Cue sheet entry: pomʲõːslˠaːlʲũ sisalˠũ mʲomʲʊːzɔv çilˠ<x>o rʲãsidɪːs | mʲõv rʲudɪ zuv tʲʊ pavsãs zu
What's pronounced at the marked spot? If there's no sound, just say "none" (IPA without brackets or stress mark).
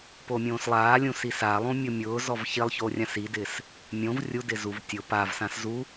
ç